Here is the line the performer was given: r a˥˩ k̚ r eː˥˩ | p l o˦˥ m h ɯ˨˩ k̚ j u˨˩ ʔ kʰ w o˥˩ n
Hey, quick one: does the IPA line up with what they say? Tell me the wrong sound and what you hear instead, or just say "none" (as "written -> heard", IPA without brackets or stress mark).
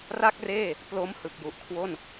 none